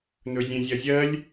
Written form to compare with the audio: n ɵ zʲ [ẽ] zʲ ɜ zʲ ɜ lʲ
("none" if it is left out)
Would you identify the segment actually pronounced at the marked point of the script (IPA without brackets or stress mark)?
ẽ